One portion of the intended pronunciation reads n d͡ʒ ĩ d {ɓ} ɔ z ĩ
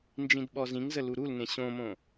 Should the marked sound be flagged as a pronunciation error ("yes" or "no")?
no